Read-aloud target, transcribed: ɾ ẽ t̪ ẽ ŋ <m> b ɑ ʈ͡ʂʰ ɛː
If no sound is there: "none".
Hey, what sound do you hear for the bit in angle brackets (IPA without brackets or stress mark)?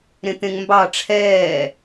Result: m